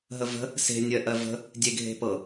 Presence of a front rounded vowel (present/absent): absent